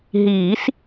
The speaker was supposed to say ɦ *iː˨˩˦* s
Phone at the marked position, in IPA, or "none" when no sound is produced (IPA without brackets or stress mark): iː˨˩˦